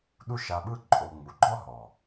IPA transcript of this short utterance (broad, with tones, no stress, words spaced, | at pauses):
ɗu˦ʃa˧ɓɯ˦ ǃʼo˧ ŋ͡mu˨ɡ͡ǃɔ˦ɦɔ˨